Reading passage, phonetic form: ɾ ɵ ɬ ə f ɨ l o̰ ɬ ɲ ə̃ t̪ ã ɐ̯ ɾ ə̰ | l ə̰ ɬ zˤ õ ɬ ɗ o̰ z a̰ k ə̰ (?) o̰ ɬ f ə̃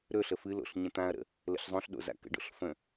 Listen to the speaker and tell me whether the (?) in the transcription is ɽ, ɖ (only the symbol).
ɖ